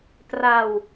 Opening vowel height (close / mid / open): open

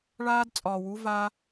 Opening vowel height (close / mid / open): open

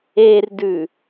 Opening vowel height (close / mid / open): mid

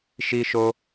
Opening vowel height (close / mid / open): close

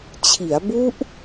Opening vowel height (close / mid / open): close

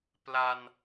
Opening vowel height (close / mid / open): open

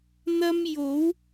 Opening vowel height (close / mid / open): open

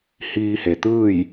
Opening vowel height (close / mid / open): close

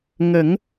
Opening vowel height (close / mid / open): mid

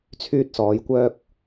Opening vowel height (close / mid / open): close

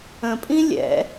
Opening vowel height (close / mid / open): mid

